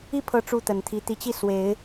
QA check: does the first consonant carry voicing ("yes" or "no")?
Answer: no